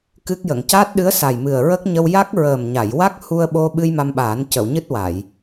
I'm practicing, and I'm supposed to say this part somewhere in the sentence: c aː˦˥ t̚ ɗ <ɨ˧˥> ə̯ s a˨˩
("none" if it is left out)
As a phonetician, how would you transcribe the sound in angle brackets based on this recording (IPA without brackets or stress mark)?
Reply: ɨ˧˥